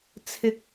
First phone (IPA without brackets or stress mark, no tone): t͡sʰ